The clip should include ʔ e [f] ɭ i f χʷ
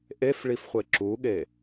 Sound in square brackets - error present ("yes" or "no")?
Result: no